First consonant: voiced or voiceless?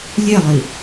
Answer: voiced